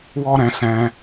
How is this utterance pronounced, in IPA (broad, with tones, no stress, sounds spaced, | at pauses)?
w ɔ˦ ɾ ɛ̃˧ s ɛ̃˧